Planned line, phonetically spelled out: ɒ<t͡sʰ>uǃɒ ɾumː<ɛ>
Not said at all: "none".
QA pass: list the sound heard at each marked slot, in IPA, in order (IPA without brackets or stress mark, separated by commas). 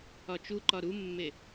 t͡ʃ, e